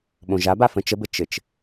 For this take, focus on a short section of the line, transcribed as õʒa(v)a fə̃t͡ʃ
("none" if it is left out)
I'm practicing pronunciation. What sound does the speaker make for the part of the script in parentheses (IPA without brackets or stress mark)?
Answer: b